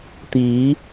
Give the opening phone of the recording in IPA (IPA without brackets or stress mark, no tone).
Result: t̪